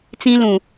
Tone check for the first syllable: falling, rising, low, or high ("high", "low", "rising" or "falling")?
high